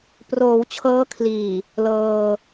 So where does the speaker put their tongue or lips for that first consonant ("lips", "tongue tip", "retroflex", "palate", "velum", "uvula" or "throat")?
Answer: lips